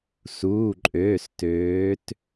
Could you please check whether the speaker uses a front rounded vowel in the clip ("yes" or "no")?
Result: yes